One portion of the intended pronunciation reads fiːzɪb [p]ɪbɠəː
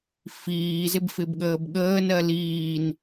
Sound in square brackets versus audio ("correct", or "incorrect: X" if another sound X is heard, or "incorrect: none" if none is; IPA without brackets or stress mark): incorrect: f